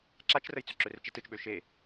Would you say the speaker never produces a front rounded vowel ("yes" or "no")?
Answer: no